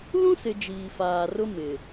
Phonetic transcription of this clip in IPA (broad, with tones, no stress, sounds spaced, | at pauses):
l ũ˦ s ɪ˨ d͡ʒ iː˨ f aː˨ r ʊ˦ m ɪ˨